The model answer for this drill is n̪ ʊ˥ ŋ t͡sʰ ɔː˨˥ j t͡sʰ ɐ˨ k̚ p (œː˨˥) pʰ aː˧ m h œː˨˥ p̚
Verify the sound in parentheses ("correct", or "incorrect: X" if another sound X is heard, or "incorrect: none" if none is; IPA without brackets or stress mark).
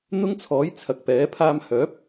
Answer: incorrect: ɛː˨˥